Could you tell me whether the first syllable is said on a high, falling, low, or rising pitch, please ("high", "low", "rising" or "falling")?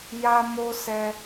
high